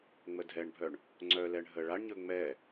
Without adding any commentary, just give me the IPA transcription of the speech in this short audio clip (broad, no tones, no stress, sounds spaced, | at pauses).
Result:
ŋ͡m ə dʱ ɛ ɳ bʱ œ ɳ | ŋ͡ǀ œ l ɛ ɳ ɦ ə ɭ a ɳ ɲ ɵ ŋ͡m ɛ